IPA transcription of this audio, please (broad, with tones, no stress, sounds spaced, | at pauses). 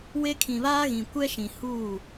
w e˦ kʰ ĩ˨ β aː˦ ɣ ĩ˨ kʷ ɛ˦ ʃ ĩ˨ h uː˦˨